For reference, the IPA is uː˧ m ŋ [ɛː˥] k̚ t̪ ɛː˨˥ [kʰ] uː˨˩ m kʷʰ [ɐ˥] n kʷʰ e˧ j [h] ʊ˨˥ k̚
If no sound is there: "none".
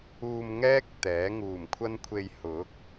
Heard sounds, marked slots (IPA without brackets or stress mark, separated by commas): ɛː˥, ŋ, ɐ˥, h